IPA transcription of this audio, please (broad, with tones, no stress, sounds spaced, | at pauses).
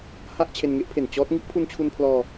h a˥˩ ʔ t͡ɕʰ e˧ n ŋ e˦˥ ʔ pʰ e˨˩ n t͡ɕ ɔː˦˥ t̚ ŋ i˦˥ ʔ pʰ u˧ n t͡ɕʰ u˧ n pʰ l ɔː˧